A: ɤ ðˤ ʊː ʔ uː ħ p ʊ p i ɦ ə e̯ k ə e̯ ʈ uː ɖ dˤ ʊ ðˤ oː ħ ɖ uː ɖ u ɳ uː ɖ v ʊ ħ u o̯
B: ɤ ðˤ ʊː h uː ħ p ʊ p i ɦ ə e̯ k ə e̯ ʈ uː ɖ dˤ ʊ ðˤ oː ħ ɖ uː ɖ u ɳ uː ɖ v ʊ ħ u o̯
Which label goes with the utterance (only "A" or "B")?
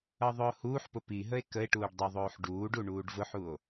B